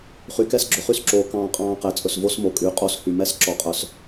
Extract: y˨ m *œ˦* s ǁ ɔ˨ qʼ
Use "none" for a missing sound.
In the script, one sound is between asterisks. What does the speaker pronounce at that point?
ɛ˦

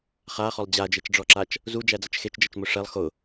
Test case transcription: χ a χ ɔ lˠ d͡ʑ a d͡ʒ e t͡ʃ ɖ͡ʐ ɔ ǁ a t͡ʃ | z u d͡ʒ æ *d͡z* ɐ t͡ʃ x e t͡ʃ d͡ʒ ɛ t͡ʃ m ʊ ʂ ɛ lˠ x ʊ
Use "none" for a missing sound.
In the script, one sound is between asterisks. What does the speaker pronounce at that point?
d͡z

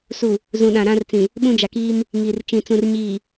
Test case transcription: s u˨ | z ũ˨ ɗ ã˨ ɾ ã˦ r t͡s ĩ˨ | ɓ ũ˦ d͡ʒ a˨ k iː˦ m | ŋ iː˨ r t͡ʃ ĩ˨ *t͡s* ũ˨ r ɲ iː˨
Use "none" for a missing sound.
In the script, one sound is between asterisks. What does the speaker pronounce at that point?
t͡s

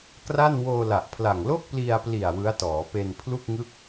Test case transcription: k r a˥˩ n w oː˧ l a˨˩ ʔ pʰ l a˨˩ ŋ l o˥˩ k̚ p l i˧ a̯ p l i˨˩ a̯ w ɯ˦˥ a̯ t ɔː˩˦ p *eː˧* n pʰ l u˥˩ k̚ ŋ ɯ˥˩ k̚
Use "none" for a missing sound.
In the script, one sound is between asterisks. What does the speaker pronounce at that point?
e˧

